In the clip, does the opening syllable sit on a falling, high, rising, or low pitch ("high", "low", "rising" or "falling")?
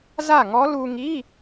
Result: falling